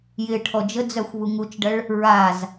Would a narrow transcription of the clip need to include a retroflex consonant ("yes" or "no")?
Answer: yes